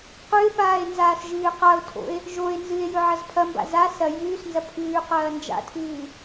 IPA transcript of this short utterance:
q ʉ e̯ p aː e̯ n z aː s ʒ ɨː q a o̯ tʰ o̰ e̯ | ʒ o e̯ n z ɨ e̯ j ɵ ʕ ɐ z pʰ ɐ m b a̰ z a s ɐ j ʉː s n z ɐ pʰ ʉː q ɐː n d͡ʒ a̰ tʰ ɨː

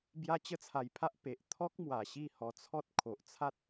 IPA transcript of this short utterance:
b j a˦ t͡ɕ ə˥˧ t͡sʰ a˧ j pʰ a˦ ʔ p e˨ ʔ t̪ʰ ɔ˦ k̚ m w a˧ ɕ i˥˧ h ɔ˧ t͡sʰ ɔ˦ t̚ kʰ o˨ ʔ t͡sʰ a˦ t̚

